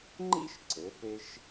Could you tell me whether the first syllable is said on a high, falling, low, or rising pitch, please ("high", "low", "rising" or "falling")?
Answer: high